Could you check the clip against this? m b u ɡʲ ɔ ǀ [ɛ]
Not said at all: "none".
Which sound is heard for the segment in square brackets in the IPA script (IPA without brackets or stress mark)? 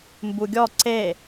e